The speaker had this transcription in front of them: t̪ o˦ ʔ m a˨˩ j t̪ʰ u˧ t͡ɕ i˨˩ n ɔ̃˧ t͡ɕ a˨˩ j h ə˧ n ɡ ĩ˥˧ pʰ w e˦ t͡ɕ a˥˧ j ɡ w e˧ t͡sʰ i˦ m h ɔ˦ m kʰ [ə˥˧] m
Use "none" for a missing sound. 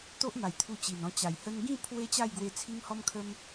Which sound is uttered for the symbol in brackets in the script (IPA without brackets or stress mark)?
ə˦